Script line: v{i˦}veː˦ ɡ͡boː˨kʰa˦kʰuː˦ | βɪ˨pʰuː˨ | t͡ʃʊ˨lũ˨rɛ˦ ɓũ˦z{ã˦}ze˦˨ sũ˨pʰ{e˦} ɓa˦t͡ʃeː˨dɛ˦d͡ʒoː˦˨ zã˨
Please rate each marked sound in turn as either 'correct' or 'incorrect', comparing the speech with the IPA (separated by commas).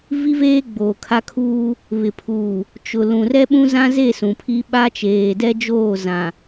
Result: correct, correct, incorrect